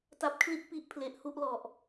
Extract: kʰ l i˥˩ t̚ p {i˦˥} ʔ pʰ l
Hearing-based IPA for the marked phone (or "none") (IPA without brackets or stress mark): i˦˥